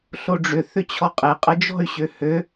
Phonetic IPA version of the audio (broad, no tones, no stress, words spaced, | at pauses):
ɬoɖ͡ʐʏ θʏt͡ɕʰɔqʼe qʼəd͡ʒɔ̤y̯ ɕøhø